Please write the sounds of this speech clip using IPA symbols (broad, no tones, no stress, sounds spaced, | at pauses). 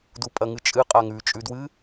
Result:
d u pʼ ɐ ŋ ɨ t͡ʃʼ ɨ qʼ a ŋ ʉ t͡ʃʼ ʉ d w ɨ